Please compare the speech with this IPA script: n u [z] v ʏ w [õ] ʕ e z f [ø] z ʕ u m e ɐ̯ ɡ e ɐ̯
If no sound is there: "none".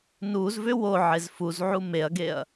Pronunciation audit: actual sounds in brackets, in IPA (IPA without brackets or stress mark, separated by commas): z, o, u